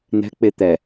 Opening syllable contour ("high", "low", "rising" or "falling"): high